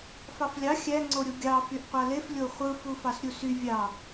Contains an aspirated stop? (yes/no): no